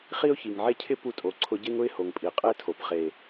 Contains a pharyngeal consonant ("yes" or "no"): yes